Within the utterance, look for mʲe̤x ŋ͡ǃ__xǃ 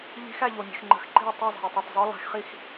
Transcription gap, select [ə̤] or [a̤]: ə̤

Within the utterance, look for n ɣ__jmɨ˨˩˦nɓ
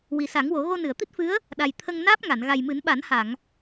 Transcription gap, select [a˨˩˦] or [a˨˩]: a˨˩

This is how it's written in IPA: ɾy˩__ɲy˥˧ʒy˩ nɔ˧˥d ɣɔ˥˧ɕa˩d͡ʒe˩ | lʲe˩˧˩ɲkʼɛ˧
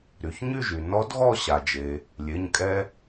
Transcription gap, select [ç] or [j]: ç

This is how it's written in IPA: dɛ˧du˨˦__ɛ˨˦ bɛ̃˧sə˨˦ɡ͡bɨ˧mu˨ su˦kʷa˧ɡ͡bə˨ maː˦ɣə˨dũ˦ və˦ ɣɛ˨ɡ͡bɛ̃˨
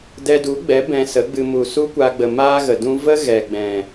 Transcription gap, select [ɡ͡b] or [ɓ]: ɡ͡b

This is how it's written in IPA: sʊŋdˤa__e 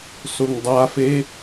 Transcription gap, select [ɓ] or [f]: f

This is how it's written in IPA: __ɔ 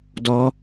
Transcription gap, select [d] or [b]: d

